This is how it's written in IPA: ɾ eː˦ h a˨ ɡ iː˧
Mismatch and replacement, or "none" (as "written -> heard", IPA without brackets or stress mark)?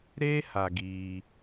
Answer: none